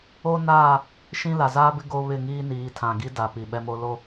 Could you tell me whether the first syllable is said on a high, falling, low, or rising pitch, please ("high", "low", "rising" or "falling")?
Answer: high